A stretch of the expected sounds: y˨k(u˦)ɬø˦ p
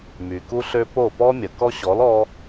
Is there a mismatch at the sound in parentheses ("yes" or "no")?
no